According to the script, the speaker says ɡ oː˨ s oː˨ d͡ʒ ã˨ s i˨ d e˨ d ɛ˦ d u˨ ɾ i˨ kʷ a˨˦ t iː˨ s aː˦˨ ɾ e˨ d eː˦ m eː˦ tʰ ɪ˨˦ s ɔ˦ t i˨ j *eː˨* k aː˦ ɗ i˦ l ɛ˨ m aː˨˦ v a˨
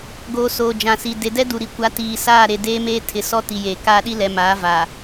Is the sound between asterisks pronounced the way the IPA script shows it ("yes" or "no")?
yes